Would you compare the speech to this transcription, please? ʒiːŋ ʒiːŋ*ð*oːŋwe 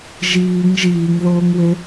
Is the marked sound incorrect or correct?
correct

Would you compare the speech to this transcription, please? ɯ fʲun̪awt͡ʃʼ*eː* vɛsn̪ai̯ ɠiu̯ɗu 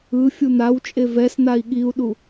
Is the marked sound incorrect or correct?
incorrect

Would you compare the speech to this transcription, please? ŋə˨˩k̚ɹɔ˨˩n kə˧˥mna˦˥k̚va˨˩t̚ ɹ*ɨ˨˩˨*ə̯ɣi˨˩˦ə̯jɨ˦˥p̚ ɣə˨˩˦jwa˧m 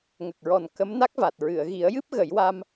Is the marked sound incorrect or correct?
correct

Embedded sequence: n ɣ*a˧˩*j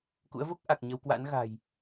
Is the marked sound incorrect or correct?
incorrect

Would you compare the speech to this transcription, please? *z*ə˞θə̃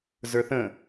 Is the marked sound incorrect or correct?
correct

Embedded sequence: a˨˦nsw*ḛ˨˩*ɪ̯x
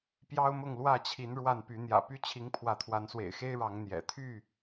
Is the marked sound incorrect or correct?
correct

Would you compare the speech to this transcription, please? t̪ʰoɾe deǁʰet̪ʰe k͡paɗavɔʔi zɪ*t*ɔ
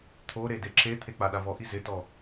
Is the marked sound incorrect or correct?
correct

